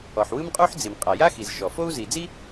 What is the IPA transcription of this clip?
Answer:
ɔ˩ ħ w ɯ˥ m qʼ u˥ ħ d͡z i˩ m qʼ a˩ j a˥ x i˩ z ʃ ɔ˩ f o˥ u̯ z i˩ d͡z i˥

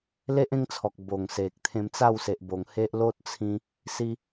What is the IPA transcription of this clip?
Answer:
l e˦ ʔ ẽ˦ ŋ t͡sʰ ɔ˨ k̚ b o˨˩ ŋ s e˨ k̚ t̪ʰ ẽ˧ m t͡s a˥˧ w s e˨ ʔ b o˨˩ ŋ h e˦ ʔ l o˦ t̚ t͡sʰ ĩ˧ | s i˧

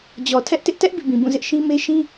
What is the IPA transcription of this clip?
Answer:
d͡ʑ ɔ˨ tʰ ɛ˦ ʔ t ɪ˦ ʔ t ɛ˦ ʔ b ḭ˦˨ b ĩ˨ b ũ˦˨ z ɪ˦ ʔ ʃ ĩ˦ m e˦ ʃ ĩ˦

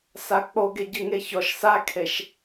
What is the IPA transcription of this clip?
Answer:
s a k͡p o ɡ e ɟ ɨ ŋ e ç ɔ ʃ s a kʰ e ʃ

